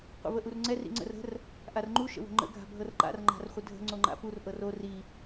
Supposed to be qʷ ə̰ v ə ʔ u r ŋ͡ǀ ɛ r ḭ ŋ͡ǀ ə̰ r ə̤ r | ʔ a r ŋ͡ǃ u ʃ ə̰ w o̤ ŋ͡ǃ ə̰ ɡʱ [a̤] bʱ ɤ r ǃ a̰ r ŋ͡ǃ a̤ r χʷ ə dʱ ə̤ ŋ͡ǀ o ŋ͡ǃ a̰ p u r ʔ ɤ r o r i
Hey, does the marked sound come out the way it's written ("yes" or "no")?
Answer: yes